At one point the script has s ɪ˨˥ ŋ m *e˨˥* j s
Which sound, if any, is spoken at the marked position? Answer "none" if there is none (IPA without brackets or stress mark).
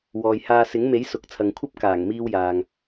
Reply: e˨˥